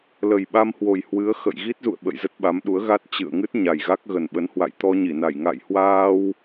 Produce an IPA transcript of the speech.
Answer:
l ə˨˩ j ɓ a˧ m h w o˨˩ j h w ɨ˨˦ ə̯ x ə̰˧˨ j ɣ i˦˥ t̚ z ṵ˧˨ ə̯ ɓ ə̰˧˨ j z ə˦˥ t̚ ɓ a˨˦ m ɗ u˨˦ ə̯ ɣ a˦˥ t̚ t͡ɕ ɨ̰˧˨ ə̯ ŋ ɨ˦˥ t̚ ɲ a˨˩ j ɣ a˦˥ k̚ ɣ ə˨˩ n ɓ ə˨˦ n h w a̰˧˨ j t̪ ɔ˧ ɲ i˧˩ n a˧˩ j ŋ a̰˧˨ j h w aː˧ w

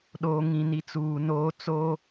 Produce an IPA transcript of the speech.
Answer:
ɗ oː˨ ŋ ĩ˨ n i˨ t͡s uː˨ n oː˦ t͡s oː˦

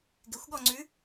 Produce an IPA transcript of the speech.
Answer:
ɡ ɪ xʷ ɠ ɔ ŋ͡ǀ ʉ

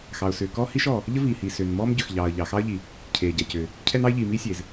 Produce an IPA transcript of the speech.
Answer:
x ɑ˩ ʊ̯ s ʏː˩ k ɔː˥ h i˥ ʃ ɔː˩ | ʎ ə˥ v iː˩ h iː˩ s ʏː˩ n m ɔː˥ m ɟ ʏ˩ x ʎ ɑː˩ ə̯ ʎ ɑ˩ x ɑ˥ ə̯ ʎ i˩ | cʰ eː˩ ɟ ɛ˩ c ʏː˩ | cʰ ɛ˥ n ɑ˥ ɪ̯ ʎ iː˩ m iː˥ sʲ eː˩ z

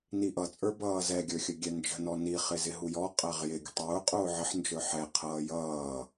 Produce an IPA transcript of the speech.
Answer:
n i ʔ ʌ t͡sʼ ə˞ b ʌː z ɛ ɡʲ ə˞ xʲ ə ɡʲ ɛ n d͡ʒ ə̤ n ɔ n i χ ɪ z ɪ ɦ u j ɔ qʼ æ ʁ j ɪ ɡʲ ə̤ tˤ ʊː qʼ ʊː ʕ ə ħ n d͡ʒ ə˞ ħ ɛ qʰ ʌː j ʌː

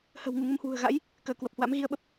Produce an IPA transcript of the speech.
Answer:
h ə̤˨˩ w ŋ u˧˩ ŋ ə˧ m h w ṳ˨˩ ə̯ ɣ a̰˧˥ j | k əː˧˩ k w ə˨˩ p̚ h w a̰˧˥ m ɣ i˧ ə̯ ɓ ə˦˥ p̚

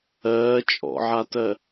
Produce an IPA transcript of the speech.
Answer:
ɜː t͡ʃʼ ɔ̰ ʕ a t ɜ

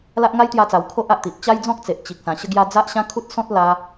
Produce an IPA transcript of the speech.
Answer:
l a˦ ʔ ŋ a˦ j t̪ j a˧ t͡s a˨˩ w kʰ o˦ ʔ a˨ ʔ t̪ i˨ ʔ t͡ɕ a˦ j d͡z ɔ̃˦ k̚ t͡s e˨ ʔ t͡ɕ i˨ k̚ s ã˨˩ ɕ ə˧ ɡ j a˧ d͡z a˦ ʔ ɕ ã˦ kʰ u˦ t̚ s ɔ̃˦ t̚ l a˧

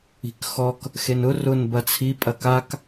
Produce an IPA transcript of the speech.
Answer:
i̤ k x ɔ k | x e n ʊ r ʊ n b ɐ t͡sʰ i pʼ ɐ k a k

